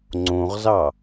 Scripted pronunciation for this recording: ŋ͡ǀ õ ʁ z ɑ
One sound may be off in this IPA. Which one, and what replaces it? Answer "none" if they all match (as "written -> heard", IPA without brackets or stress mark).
none